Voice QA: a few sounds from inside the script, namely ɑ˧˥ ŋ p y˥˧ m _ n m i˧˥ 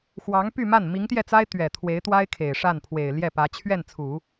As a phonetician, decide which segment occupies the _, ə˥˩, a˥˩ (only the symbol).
a˥˩